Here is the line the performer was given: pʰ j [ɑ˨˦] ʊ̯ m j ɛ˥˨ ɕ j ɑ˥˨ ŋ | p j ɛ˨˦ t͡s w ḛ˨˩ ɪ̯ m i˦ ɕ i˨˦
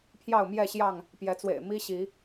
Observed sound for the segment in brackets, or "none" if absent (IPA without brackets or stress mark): ɑ˥˨